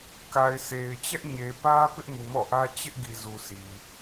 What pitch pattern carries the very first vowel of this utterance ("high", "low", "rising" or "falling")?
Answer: low